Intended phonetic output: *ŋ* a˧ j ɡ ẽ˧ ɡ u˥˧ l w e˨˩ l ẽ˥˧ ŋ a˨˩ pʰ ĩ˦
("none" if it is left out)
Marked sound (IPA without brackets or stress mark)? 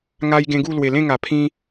ŋ